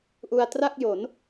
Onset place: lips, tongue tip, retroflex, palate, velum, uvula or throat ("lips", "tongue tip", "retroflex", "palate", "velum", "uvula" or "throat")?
throat